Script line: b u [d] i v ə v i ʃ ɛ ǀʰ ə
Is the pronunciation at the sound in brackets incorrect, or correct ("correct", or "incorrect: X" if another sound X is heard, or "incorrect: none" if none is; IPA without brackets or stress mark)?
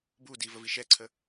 correct